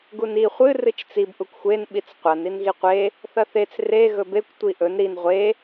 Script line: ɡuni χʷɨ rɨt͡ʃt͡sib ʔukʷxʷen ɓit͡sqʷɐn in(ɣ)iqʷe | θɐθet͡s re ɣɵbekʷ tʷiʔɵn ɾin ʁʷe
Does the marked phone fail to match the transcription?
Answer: no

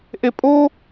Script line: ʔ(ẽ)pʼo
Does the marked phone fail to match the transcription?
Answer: yes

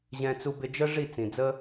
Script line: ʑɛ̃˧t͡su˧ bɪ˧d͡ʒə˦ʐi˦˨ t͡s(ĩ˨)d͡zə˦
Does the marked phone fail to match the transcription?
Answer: no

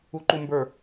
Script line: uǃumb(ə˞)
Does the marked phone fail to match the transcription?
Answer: no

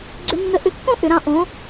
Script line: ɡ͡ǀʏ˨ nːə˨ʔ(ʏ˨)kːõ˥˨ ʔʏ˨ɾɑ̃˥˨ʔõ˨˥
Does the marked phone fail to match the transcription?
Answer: yes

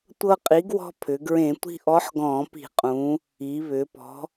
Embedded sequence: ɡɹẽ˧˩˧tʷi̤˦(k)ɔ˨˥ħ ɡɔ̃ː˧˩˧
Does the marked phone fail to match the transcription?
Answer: yes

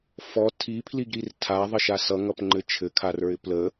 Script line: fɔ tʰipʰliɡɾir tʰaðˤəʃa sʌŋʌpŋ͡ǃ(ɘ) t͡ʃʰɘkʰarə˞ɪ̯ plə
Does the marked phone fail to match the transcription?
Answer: no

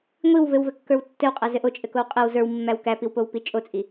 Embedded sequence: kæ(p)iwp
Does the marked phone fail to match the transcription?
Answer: no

